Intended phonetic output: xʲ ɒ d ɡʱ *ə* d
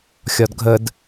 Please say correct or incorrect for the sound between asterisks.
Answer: correct